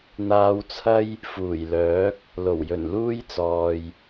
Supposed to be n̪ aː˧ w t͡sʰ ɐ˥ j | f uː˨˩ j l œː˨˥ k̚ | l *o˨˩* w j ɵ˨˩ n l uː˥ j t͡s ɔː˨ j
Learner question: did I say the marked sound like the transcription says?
yes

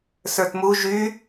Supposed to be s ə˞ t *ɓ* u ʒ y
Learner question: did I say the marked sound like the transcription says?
no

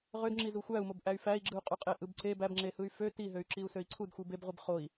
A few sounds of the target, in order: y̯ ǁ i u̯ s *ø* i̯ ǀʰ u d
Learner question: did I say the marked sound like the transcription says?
yes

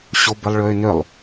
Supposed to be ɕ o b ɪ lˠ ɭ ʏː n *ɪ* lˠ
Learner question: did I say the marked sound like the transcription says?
no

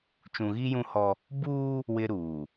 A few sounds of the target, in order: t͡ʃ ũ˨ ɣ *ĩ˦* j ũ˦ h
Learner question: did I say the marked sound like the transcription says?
no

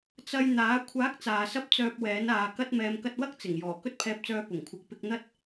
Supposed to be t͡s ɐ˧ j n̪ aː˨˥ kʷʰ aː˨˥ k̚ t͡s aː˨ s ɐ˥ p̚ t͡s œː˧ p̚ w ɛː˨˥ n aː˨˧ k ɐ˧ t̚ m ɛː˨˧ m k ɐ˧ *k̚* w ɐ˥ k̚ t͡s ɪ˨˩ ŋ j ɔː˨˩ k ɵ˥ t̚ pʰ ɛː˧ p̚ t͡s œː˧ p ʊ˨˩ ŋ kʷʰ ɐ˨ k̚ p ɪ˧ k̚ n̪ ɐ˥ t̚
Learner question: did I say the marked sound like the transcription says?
no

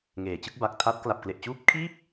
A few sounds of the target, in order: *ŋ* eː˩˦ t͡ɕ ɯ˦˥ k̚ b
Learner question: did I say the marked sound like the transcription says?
yes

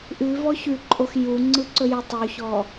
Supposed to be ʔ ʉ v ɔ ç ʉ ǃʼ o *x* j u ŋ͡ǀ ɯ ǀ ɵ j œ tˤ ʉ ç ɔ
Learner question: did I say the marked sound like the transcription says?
yes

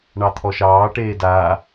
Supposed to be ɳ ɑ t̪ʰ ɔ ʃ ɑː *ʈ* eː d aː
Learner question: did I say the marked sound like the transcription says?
yes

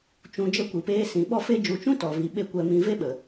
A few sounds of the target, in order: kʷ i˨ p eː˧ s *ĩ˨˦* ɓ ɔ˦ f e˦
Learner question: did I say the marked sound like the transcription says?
yes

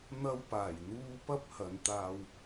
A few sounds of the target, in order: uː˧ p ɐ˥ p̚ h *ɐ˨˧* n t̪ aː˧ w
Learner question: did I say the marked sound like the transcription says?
yes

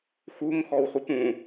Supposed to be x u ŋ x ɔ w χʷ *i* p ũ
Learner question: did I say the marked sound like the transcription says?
yes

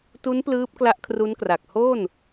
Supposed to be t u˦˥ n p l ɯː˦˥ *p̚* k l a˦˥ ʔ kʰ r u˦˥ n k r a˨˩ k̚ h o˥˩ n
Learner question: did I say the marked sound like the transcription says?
yes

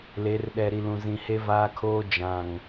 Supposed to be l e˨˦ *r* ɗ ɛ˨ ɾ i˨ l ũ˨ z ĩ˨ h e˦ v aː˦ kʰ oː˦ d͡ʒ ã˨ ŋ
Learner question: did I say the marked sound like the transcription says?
yes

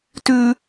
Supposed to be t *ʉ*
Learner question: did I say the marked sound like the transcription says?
yes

